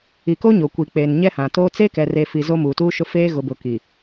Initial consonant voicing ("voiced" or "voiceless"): voiceless